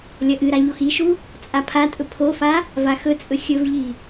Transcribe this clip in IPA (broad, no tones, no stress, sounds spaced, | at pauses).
lʲ ɐ ʔ ɨ ɾ a ʎ o x i ʃ u | t͡sʼ a pʰ a tʼ ɵ pʰ o f a | v a x ɵ t͡sʼ ɵ xʲ ɵ v ʎ i